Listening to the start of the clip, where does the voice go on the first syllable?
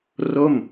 falling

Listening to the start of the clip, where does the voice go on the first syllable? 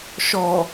low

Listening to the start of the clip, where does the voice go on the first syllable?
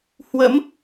rising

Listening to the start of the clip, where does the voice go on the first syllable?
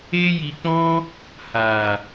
high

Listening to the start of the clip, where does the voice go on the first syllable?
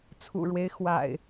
low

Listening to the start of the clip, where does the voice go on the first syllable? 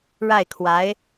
falling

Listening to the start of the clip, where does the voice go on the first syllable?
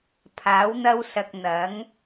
rising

